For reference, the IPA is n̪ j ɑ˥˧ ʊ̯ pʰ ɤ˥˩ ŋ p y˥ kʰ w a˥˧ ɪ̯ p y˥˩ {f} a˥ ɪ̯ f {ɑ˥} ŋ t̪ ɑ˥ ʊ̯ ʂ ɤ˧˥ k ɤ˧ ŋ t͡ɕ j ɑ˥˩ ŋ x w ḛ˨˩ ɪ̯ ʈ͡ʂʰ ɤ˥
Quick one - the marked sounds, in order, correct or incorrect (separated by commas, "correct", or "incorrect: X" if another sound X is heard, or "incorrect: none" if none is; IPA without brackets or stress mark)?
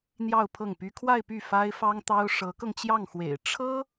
correct, correct